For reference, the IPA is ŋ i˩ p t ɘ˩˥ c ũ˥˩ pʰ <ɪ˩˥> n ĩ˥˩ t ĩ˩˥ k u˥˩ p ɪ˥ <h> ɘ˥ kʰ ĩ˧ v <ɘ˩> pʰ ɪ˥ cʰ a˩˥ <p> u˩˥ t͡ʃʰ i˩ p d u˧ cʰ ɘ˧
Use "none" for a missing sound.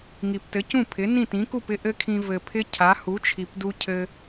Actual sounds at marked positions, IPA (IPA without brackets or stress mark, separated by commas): ɪ˩˥, ʔ, ɘ˩, h